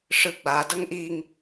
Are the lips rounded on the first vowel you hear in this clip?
no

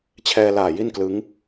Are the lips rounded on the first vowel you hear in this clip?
no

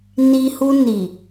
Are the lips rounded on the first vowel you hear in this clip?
no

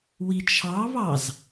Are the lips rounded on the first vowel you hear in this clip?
no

